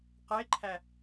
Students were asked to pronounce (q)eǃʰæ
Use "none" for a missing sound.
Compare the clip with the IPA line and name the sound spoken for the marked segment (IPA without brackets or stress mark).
q